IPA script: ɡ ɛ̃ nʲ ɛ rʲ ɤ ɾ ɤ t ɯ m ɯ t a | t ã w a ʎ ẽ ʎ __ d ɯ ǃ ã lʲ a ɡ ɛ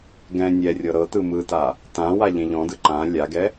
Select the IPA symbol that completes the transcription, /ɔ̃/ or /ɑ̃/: ɔ̃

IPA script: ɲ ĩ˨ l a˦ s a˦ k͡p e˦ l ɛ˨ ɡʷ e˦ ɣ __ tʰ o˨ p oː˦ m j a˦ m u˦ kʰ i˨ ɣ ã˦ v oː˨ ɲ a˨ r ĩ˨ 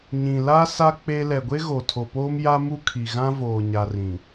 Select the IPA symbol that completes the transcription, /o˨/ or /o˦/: o˨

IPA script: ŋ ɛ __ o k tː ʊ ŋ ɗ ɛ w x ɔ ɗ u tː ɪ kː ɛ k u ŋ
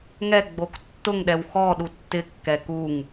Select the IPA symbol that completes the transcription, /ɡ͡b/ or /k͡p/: ɡ͡b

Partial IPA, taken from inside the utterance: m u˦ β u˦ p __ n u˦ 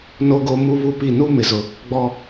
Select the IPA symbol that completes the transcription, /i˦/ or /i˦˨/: i˦˨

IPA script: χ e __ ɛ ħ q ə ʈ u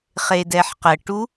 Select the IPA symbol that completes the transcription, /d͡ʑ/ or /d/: d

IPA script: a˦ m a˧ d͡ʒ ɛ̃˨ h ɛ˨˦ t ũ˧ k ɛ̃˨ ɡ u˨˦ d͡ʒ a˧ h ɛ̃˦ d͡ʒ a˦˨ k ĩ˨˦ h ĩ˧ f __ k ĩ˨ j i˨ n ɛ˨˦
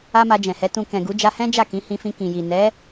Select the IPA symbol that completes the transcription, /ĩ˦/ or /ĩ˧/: ĩ˧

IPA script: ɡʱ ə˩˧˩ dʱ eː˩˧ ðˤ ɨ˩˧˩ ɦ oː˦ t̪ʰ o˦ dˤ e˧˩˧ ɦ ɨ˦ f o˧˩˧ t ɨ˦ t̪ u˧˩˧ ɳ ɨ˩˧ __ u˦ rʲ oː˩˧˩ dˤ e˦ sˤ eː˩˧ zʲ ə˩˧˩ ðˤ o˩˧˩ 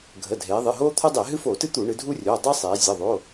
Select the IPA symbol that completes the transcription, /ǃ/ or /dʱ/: dʱ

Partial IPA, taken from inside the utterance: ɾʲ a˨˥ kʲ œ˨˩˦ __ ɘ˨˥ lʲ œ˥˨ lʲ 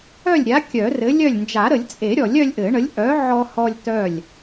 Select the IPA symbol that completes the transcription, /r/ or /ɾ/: r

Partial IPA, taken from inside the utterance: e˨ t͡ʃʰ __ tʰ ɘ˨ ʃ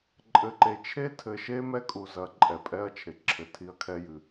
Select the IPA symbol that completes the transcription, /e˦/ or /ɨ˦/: e˦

